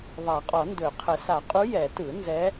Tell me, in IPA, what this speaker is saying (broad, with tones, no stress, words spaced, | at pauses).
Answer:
ðˤa˨˩˦qʼɔ˨˩˦ndɵ˨˩˦qʰə˨˩˦ sa˨˩˦qʼu˧˥ jɛ˨˩˦tɯ˨˩˦ nzɛ˧˥